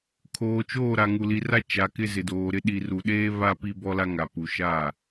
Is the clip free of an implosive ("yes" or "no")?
no